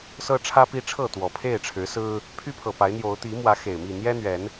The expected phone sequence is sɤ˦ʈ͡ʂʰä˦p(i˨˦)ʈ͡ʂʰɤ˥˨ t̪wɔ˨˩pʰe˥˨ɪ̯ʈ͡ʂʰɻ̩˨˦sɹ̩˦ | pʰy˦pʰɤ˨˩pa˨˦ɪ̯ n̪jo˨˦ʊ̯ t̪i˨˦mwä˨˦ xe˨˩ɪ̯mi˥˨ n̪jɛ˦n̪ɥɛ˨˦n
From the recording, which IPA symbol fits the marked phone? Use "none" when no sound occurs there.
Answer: i˦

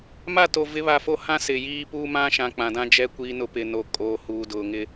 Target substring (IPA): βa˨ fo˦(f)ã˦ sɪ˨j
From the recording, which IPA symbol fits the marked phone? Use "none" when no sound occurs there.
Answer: h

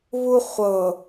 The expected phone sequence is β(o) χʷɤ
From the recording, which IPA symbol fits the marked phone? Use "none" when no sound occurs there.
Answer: u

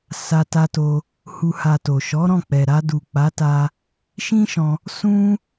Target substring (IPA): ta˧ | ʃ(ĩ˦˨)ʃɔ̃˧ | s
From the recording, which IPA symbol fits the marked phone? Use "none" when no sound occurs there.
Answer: ĩ˦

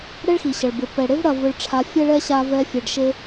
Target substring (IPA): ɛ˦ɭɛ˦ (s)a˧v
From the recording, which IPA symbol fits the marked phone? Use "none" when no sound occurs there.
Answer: ɕ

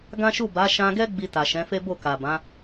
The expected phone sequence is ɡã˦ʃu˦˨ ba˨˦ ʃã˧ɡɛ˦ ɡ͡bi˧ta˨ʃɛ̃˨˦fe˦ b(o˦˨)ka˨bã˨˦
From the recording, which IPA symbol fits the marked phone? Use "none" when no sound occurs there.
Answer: o˦˨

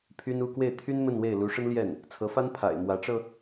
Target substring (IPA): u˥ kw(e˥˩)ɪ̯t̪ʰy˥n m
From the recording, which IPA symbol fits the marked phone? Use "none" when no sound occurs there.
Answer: e˥˩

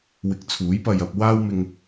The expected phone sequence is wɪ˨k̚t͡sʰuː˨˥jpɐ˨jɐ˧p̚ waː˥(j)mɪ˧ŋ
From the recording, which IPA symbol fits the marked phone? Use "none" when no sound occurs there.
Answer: w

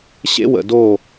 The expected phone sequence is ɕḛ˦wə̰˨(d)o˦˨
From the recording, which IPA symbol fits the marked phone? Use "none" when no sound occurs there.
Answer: d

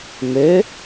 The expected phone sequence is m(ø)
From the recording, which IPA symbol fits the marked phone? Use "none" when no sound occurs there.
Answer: ø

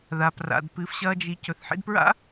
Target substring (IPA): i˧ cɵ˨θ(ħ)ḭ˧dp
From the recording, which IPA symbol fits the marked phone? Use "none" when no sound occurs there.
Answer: ħ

